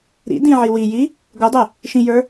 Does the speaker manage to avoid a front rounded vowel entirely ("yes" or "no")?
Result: yes